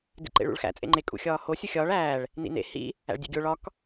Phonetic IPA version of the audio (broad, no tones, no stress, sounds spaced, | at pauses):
d ḭ ǃ ḛ ɭ ṵ ɭ x æ̰ t͡sʼ ḛ ŋ͡ǃ e kʼ ṵ xʲ ɒː h o sʲ u xʲ ɒː ɭ æː ɭ | n ḭ n ḛ h ḭ | æ̰ ɭ dʲ ḛ ɡʲ o ɭ ɒ k